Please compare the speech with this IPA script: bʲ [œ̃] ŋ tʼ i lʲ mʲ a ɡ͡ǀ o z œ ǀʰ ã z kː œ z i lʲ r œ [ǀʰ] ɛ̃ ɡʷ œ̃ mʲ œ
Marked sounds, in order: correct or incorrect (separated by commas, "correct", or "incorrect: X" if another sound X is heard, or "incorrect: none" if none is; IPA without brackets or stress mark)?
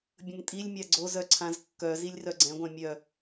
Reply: incorrect: ə̃, incorrect: ɡ͡ǀ